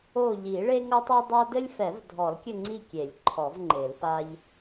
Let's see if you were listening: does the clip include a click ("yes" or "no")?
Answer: yes